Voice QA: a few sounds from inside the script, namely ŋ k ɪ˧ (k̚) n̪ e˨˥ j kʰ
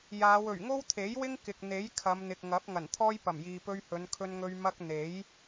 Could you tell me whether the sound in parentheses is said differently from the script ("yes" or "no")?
no